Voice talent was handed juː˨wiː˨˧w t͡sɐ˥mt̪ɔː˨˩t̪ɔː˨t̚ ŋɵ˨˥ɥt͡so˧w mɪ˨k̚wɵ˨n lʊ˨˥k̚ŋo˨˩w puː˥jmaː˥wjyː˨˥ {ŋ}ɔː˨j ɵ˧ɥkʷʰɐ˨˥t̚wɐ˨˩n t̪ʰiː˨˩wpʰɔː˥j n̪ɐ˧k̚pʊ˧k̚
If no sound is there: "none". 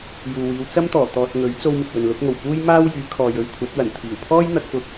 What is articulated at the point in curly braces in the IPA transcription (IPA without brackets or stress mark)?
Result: kʰ